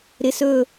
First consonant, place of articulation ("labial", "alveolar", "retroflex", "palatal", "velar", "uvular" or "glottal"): alveolar